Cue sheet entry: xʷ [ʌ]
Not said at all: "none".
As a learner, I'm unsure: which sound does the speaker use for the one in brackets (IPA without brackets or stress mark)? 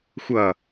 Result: ʌ